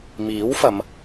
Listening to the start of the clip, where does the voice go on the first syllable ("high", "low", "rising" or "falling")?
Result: rising